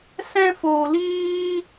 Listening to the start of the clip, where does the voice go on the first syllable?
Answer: high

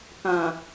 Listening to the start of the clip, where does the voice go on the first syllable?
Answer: low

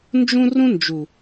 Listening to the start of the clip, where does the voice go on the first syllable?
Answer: high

